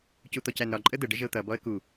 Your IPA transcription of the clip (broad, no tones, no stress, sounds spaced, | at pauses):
c u t̪ ɔ c æ n ɾ ɒ ǃʼ ə d̪ ə ɖ ə ʒ ə ʊ̯ t̪ ʌ b ɔ ə̯ k u